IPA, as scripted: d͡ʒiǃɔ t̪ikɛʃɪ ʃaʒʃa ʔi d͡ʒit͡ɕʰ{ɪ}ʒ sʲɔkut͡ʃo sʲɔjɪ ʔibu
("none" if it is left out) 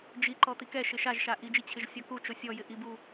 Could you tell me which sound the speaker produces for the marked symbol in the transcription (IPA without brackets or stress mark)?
ɪ